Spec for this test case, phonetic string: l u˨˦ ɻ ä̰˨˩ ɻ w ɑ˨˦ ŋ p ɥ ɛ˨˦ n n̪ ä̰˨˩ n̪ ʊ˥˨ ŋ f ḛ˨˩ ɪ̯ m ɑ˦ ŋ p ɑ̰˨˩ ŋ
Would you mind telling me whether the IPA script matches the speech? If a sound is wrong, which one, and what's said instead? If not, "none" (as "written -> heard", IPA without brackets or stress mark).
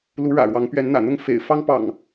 m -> f